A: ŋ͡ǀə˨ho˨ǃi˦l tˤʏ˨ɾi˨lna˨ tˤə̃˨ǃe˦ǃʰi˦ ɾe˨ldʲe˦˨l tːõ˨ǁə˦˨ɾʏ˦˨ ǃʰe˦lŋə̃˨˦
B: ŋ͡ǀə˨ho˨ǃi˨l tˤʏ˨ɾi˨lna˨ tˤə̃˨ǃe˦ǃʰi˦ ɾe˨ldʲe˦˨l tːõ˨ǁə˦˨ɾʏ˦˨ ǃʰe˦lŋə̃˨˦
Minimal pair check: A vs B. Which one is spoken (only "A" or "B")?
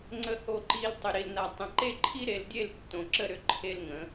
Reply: B